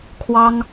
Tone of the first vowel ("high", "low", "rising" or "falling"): high